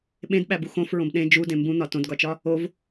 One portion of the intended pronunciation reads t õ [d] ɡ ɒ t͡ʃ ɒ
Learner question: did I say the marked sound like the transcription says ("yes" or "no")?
yes